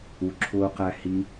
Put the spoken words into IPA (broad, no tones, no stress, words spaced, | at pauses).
uǁʰʊː qæhi